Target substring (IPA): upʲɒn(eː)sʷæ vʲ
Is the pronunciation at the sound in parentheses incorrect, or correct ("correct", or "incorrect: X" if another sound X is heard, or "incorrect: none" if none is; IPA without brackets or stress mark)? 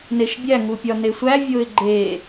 incorrect: e